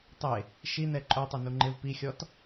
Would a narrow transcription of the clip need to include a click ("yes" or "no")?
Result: yes